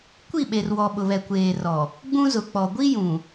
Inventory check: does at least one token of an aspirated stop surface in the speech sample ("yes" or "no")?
no